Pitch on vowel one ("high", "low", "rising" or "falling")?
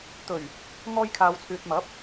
low